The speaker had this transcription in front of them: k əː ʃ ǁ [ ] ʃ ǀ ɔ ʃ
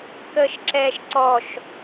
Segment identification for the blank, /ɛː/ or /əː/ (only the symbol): ɛː